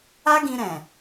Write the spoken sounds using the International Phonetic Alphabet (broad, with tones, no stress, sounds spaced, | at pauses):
a˦ ɡ ĩ˧ ɾ ɛ̃˨